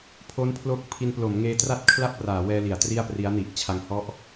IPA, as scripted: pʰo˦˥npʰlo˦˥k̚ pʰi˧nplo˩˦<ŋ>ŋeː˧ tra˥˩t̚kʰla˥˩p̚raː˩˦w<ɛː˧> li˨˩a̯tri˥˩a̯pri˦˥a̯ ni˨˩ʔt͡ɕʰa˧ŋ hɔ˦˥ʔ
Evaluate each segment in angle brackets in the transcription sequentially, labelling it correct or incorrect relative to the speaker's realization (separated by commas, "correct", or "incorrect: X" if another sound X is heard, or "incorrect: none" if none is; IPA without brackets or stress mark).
incorrect: m, correct